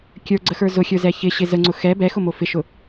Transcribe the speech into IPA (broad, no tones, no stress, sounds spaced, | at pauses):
kʲ ə˞ ɡ͡ǀ ə x ə˞ z ʊ xʲ ə˞ z ɛ ç ɪ ɕ ɪ z ə ŋ͡ǀ ʊ x ɛ b ɛ x ʊ m o f ɪ ʃ ʊ